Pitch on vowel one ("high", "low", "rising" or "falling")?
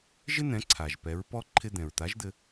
high